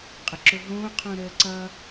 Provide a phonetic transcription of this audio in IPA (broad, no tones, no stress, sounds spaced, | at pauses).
qʼ ə ǁ o ɦ õː qʰ õ ɾ əː ǀ ʌ